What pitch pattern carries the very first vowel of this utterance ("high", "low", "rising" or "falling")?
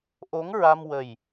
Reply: rising